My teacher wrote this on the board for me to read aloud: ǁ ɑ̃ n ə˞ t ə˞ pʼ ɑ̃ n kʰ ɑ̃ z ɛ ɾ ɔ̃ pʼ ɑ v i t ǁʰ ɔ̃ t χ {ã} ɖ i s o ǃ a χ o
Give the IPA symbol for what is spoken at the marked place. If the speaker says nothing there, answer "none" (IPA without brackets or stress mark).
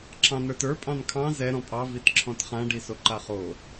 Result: ã